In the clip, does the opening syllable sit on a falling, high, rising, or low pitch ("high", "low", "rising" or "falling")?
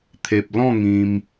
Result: low